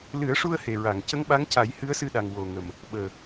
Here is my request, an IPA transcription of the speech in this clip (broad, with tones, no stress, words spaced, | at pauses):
lɨ˨˩˦ə̯ʂu˧ə̯ he˨˩ɹa˨˩˨ŋ cə˧˥ŋɓa˧˥ŋca˨˩˦j hɨ˧˥ə̯sɨ˧ɗa˨˩ŋ wo˨˩ŋə˨˩m | ɓəː˨˩